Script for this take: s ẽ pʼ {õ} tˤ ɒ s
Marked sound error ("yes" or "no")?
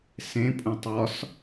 yes